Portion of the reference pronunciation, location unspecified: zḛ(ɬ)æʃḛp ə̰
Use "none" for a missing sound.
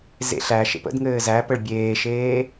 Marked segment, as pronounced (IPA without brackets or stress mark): ɬ